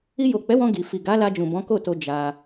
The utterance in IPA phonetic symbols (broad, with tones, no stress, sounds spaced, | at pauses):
i˧ j o˨ k͡p ɛ˨˦ w ɔ̃˧ ɡ i˨ f i˨ ɡ a˨˦ l a˧ d͡ʒ ũ˨ b ɔ̃˨˦ k o˦˨ t o˧ d͡ʒ a˧